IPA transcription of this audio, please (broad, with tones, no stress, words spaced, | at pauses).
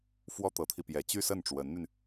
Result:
fwɔ˥t̪ɤ˧˥t̪ʰi˧pjɛ˧˥ t͡ɕy˥sə˥˩nʈ͡ʂwə˧˥nn̪y˧n